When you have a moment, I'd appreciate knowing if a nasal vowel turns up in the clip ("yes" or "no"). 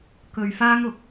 no